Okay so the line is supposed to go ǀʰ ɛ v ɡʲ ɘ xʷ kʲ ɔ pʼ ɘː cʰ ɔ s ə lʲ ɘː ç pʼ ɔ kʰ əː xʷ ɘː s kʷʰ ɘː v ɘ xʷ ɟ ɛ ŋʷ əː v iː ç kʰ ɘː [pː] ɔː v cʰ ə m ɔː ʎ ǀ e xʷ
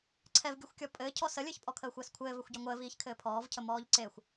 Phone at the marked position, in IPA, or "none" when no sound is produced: pʰ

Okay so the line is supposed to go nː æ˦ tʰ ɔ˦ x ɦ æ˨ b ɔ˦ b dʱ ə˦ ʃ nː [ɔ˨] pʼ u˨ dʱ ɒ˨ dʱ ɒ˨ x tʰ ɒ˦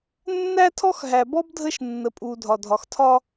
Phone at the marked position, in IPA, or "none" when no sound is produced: ə˨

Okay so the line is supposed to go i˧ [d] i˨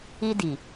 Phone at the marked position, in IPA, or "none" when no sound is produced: d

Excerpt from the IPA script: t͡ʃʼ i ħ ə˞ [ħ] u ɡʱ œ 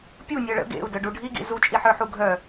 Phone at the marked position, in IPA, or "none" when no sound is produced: ħ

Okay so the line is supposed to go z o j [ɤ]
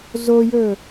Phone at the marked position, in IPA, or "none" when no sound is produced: ɵ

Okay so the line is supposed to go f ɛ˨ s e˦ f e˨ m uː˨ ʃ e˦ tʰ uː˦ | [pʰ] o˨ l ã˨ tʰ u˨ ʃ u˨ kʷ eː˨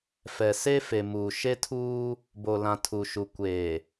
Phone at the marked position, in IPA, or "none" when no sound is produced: b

